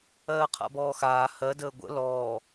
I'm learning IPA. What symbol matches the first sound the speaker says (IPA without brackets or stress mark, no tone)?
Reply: ɜː